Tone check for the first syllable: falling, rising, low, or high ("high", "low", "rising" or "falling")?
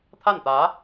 falling